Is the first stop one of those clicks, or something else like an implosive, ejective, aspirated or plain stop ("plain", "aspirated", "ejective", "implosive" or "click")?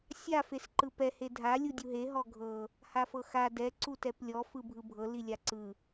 click